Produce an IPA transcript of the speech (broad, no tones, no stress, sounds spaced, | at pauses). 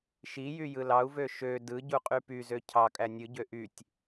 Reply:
ʃ i j y j ɯ l ɑ u̯ v ø ʃ ø d ɯ ɟ u qʼ y p y z ø cʰ ɑ kʼ æ nʲ ɯ ɟ ø ʔ y tʲ